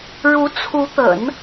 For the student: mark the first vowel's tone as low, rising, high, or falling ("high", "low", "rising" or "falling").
rising